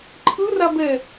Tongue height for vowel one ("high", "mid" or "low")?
high